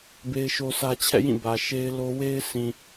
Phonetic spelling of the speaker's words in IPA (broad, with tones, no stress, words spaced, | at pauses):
be˦ɪ̯ʃo˦sä˦ t͡ɕʰɛ̰˦˨jĩ˦˨ bä˨ʃe˦ɪ̯lo˦ we˦ɪ̯sʰĩ˨